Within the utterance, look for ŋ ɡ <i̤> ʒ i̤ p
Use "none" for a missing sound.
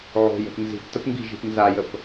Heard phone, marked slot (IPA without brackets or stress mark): i̤